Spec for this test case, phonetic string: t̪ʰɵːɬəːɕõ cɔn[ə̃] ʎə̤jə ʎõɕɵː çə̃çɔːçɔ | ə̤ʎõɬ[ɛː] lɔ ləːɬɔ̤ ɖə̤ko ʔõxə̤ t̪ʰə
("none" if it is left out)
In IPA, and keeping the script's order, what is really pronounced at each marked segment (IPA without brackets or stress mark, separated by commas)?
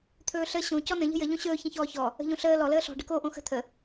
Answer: ə̃, əː